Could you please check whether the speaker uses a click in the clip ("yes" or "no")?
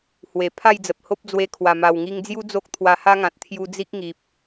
no